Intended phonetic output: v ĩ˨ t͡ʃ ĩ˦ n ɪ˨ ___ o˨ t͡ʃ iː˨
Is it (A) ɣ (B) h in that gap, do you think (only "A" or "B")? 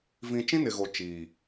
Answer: A